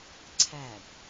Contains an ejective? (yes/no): no